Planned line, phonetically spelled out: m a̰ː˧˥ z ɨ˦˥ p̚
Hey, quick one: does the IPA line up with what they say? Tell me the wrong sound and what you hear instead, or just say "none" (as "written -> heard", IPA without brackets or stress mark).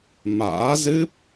none